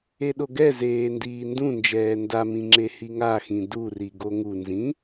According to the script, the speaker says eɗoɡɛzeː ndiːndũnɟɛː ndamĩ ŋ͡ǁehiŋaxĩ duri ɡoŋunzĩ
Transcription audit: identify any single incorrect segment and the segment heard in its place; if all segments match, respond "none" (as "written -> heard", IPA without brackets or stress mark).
ɟ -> d͡ʒ